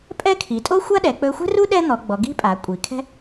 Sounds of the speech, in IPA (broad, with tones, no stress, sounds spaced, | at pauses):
pʼ ɛ˥ kʰ i˩˧ tʼ o˥ xʷ a˥ ɗ ɛ˩˧ k͡p ɵ˧ xʷ ɛ̤˥ r u˥ ɗ ɛ˥ n̪ ɔ˩˧ ɡ͡b ɔ˩˧ ɡ i̤˥ pʼ a˩˧ kʷʼ i˩˧ kʰ ɛ̤˥